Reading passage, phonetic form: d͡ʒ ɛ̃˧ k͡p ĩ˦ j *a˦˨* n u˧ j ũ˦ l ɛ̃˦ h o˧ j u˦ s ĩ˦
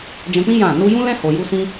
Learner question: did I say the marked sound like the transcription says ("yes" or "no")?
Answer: no